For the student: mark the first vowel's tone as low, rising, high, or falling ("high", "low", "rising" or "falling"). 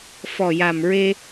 low